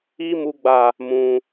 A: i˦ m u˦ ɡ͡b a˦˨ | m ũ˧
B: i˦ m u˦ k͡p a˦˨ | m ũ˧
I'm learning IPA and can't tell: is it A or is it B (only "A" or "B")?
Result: A